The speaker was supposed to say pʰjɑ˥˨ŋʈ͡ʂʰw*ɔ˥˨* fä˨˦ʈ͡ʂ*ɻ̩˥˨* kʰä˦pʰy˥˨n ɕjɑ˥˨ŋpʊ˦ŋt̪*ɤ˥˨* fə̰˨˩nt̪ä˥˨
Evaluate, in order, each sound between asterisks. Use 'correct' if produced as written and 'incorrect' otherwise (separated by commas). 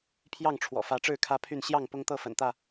incorrect, correct, correct